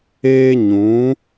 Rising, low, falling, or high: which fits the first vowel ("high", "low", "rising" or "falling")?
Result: high